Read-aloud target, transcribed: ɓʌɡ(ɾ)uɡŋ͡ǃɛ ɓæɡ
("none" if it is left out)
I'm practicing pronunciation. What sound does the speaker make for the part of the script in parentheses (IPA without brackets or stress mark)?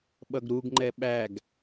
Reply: ɾ